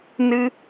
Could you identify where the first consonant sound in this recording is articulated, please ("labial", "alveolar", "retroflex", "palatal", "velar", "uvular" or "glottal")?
alveolar